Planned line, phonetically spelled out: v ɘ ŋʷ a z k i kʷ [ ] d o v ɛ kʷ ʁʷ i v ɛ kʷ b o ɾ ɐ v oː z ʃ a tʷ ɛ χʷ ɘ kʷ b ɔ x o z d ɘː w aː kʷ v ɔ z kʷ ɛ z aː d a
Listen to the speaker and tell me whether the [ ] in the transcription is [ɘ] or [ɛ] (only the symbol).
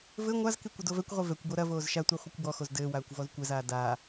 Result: ɘ